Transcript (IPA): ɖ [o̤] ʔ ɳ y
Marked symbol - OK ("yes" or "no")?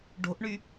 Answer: yes